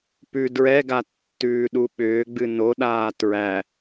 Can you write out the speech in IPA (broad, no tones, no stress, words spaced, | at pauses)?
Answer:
pʉ dɹɛɡa tːʉːɗuɓʏːɡ͡bɨ noɗaː tɹæ